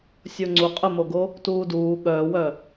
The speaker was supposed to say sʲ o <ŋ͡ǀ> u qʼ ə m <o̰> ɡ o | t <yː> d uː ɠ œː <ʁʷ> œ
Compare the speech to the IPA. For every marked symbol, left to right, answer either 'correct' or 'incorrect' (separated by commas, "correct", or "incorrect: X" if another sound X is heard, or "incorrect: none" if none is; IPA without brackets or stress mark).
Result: correct, incorrect: o, incorrect: uː, incorrect: w